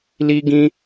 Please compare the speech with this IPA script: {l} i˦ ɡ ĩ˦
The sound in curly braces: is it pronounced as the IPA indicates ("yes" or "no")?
yes